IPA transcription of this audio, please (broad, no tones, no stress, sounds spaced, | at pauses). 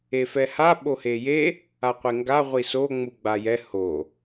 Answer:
e f ɛ h a ɓ o h e j e | a qʷ e ŋ ɡ a ʁʷ i s o ŋ͡m u ɡ͡b a j ɛ h o